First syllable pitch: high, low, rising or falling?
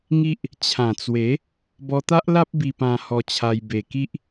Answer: high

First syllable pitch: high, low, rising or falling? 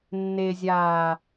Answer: low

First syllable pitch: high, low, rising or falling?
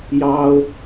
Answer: high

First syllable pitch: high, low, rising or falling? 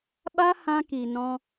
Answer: high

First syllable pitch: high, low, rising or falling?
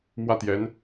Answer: falling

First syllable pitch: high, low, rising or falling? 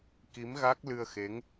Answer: rising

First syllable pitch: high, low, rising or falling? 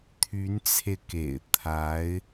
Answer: rising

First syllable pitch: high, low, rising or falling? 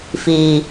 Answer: low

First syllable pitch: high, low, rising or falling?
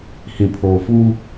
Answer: low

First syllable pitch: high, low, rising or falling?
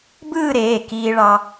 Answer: falling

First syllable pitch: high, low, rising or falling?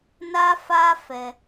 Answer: high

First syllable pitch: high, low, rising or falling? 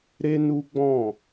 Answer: high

